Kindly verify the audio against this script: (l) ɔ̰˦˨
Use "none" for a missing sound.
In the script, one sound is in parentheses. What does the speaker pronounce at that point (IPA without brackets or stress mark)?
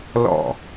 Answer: l